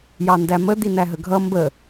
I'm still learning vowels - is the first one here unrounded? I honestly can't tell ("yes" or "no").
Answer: yes